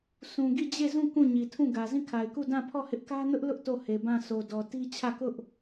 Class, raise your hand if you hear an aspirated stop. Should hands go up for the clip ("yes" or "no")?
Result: yes